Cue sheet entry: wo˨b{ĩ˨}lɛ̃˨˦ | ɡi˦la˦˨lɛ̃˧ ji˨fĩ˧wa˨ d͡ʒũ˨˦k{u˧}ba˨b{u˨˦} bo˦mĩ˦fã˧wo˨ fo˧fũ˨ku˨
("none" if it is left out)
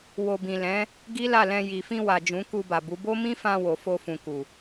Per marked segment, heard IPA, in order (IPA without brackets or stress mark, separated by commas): ĩ˨, u˧, u˨˦